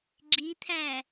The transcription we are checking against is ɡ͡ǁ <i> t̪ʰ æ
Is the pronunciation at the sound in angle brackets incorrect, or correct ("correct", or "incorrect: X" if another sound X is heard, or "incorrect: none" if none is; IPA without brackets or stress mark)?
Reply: correct